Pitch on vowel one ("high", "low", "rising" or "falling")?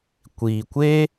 low